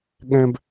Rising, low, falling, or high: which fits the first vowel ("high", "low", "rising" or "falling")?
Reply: high